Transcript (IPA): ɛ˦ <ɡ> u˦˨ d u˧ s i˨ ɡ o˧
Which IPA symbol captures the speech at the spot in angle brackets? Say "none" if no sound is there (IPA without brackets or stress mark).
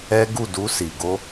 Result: ɡ